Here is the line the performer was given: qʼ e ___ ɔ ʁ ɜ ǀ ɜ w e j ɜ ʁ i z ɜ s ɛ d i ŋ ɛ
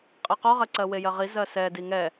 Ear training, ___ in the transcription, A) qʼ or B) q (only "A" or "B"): B